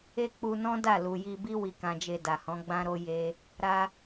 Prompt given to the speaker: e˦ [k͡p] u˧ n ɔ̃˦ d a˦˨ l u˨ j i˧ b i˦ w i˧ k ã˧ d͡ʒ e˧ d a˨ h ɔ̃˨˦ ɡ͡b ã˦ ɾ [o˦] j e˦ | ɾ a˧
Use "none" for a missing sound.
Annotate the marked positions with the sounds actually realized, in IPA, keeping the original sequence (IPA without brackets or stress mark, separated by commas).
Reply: k͡p, o˦